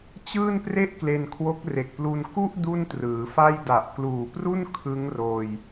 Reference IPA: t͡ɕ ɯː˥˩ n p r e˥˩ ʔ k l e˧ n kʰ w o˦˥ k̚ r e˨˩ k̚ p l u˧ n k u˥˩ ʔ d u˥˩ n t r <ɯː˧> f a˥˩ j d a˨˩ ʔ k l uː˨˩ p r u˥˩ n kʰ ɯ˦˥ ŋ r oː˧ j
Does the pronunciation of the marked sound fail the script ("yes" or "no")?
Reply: yes